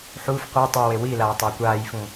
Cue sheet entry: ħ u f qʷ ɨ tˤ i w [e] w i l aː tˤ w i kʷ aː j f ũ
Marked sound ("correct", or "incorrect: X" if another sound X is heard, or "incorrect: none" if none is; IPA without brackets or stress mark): correct